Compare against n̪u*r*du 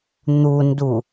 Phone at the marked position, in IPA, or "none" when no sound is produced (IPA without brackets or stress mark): n